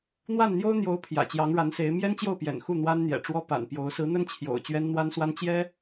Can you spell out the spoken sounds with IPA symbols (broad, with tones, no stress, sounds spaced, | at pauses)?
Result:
n̪ w a˥˩ n n̪ j o˥ ʊ̯ n̪ j o˧˥ ʊ̯ pʰ j ä̰˨˩ t͡ɕ j ɑ˧˥ ŋ ɻ a˧˥ n s e˧˥ ɪ̯ m j ɛ˥ n t͡ɕ j o˥˩ ʊ̯ p j ɛ̰˨˩ n x u˥˩ n̪ w a˥ n n̪ j ɛ̰˨˩ ʈ͡ʂ w ɔ˥ p a̰˨˩ n p j o˧˥ ʊ̯ s ɹ̩˧˥ n̪ ə˥ n t͡ɕʰ j o̰˨˩ ʊ̯ t͡ɕ ɥ ɛ˥ n n̪ w a˥ n s w a˥ n t͡ɕ j ɛ˥